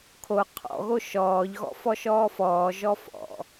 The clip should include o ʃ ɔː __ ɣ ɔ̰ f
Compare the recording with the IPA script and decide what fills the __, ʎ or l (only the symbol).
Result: ʎ